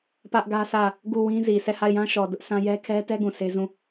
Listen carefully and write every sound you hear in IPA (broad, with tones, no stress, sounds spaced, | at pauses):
p ä˦ ʔ ɡ ä˦ s ä˦˨ | ɡ u˦˨ w ĩ˦ z i˨ s ɛ˦˨ h a˦˨ ɪ̯ j ã˦ ʃ ɔ˨ d ʊ˦ ʔ s ã˦ j ɛ˦ kʰ ɛ˦ t ɛ˦ ɡ ũ˨ s e˦ z ũ˦˨